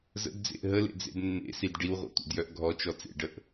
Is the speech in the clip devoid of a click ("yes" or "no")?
yes